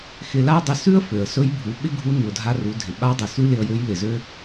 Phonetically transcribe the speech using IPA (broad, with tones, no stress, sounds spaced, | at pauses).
x ɪ˧ l a˥ dˤ ɪ˧ s ʉ˥ ə̯ f ø˩ ə̯ s ɵ˧˥ j bʱ u˩˧ ɓ ɪ˥ ɡʱ u˧˥ n ʉ˩ ʊ̯ dʱ a˧ r u˩˧ dʱ ɪ˩ ɓ a˧˥ dˤ ɪ˩ s ʉ˥ l ɪ˧ ə̯ j ø˧˥ j l ɪ˩ z ø˥